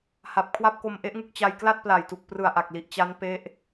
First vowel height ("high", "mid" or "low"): low